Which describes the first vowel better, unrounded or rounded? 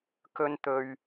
rounded